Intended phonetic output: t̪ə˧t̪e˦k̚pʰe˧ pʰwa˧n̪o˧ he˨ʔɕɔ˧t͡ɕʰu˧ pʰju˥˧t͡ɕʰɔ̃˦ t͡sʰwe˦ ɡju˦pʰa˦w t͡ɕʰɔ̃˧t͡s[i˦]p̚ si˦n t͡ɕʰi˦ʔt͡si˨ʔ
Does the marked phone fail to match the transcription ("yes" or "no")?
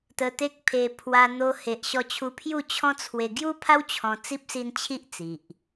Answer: no